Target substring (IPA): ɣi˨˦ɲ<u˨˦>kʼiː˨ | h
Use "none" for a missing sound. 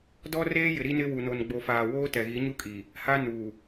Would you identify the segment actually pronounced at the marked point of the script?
u˦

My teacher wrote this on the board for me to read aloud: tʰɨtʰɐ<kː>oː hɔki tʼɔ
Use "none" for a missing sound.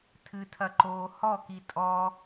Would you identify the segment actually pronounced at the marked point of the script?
ǃ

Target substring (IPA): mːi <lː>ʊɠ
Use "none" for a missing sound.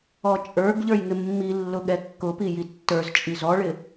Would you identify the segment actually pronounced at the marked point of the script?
lː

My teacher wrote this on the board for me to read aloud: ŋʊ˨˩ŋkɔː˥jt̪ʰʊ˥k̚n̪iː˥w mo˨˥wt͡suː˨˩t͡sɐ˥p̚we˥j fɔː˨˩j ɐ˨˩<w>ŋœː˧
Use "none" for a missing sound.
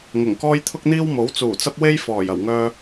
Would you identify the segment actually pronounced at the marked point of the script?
w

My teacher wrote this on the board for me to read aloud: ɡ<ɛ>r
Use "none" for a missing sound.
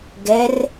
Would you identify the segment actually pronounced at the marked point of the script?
ɛ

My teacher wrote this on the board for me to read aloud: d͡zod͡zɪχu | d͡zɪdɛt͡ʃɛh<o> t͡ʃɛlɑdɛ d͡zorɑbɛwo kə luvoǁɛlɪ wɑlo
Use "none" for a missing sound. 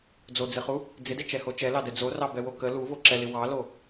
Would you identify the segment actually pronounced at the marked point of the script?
o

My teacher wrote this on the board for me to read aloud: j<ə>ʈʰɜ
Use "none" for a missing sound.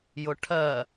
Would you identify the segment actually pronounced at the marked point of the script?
ʊ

